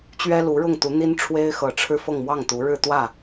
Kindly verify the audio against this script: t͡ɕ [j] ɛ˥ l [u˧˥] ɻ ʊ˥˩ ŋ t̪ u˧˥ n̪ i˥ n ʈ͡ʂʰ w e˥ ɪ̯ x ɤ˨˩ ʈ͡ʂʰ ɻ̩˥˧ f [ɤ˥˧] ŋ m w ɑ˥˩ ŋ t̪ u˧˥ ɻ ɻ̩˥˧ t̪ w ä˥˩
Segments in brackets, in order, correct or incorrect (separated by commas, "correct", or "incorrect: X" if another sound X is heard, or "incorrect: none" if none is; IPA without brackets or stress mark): incorrect: ɥ, correct, correct